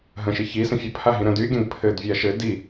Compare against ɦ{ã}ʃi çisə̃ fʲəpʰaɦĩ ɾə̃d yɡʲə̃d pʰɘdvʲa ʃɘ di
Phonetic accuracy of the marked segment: incorrect: ə̃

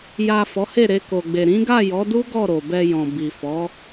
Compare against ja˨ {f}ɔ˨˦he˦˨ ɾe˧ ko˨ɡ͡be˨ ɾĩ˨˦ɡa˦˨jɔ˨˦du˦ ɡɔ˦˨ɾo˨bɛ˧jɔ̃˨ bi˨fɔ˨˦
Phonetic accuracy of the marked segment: correct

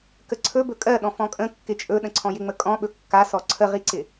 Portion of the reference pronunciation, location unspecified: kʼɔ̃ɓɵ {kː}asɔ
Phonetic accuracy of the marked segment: correct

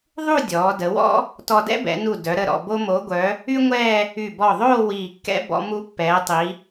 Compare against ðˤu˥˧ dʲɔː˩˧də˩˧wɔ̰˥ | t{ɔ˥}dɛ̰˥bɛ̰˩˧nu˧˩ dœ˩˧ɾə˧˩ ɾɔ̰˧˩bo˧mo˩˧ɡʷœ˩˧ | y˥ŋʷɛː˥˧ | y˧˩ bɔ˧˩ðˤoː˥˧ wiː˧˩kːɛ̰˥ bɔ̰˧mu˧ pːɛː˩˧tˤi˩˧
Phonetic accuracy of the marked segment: incorrect: ɔ˧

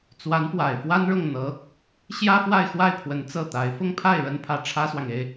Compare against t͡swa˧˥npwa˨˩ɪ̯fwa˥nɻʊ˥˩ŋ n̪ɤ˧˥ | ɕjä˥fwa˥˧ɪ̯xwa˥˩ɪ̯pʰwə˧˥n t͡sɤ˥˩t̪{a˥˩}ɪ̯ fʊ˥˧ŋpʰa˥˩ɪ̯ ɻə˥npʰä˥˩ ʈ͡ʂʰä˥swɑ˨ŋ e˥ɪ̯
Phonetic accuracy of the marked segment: incorrect: a˧˥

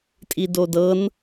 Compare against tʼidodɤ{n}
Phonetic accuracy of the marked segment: correct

